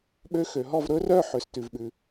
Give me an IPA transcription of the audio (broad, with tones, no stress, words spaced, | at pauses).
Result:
ɓø˧˥xø˩ɦɔ˥˩v ɾɵ˧˥rœ˥˩ ħø˩s tʉ˩vɓʉ˩